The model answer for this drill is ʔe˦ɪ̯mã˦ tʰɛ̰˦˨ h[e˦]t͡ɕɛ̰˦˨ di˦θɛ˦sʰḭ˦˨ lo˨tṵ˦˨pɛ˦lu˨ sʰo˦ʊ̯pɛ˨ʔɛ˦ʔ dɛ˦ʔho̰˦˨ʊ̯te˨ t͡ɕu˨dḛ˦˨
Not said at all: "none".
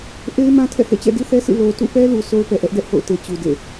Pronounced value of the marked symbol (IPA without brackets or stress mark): ḛ˦˨